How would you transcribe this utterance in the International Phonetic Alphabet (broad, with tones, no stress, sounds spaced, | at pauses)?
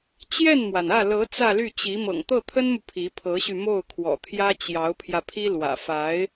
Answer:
t͡ɕ j ɛ˥˩ n m w a˩ n ä˥˩ l ɤ˧˥ t͡s ä˥˧ l y˥˩ t͡ɕ i˧˥ m ɤ̰˨˩ ŋ t̪ ɤ˥˩ t̪ʰ ə˥ n m u˨ pʰ i˧˥ pʰ ɤ˧˥ ɕ y˧ m o˥˩ ʊ̯ kʰ w ɔ̰˨˩ t̪ʰ j ä˥ t͡ɕ j ɑ˧˥ ʊ̯ pʰ j ä˧ pʰ i˥ l w ä̰˨˩ f a˧˥ ɪ̯